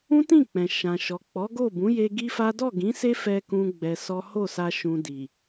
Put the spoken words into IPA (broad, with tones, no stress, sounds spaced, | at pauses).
ũ˦ t ĩ˦˨ k͡p ɛ̃˨ ʃ ã˨ ʃ ɔ˨ k͡p ɔ˨˦ ɡ o˦˨ b ũ˨˦ j e˧ ɡ i˦ f a˦ d ɔ˦˨ ɡ ĩ˨˦ s e˦ f ɛ˧ k ũ˦ ɡ͡b ɛ˧ s ɔ˦ h o˦˨ s a˧ ʃ ũ˨ d i˨